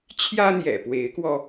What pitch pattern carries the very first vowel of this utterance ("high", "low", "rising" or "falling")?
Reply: high